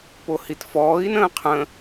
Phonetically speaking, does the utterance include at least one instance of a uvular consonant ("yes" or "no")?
yes